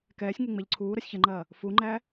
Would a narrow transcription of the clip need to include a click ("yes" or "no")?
yes